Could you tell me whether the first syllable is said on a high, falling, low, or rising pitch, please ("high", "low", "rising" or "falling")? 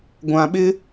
low